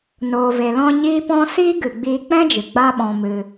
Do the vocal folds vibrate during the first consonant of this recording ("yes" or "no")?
yes